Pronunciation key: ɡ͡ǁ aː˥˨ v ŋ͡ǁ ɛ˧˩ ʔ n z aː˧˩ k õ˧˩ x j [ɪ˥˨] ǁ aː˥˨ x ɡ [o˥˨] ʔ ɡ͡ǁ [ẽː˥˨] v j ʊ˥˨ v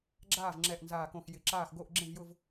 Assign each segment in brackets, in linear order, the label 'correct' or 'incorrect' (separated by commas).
incorrect, correct, incorrect